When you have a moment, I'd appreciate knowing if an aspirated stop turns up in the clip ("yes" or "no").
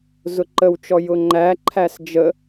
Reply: yes